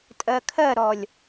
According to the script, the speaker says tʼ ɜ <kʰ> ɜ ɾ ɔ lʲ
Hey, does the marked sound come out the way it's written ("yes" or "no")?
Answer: yes